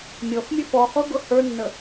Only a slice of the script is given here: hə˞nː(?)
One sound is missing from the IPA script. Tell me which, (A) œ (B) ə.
B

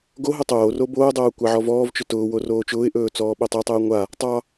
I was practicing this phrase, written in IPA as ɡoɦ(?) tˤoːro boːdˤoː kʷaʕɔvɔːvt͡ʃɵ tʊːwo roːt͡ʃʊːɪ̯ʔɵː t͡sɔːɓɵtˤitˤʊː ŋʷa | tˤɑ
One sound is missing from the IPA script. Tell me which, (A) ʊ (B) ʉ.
A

